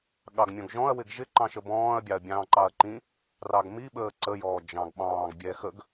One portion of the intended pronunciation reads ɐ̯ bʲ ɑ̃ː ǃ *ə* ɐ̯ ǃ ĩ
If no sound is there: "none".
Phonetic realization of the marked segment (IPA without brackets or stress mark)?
ɑ